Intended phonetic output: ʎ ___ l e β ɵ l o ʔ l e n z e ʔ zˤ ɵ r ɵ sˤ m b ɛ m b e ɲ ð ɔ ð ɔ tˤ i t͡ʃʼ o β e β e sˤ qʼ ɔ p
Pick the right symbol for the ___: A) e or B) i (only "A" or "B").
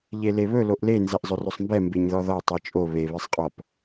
A